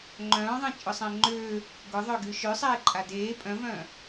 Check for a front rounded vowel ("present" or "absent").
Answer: present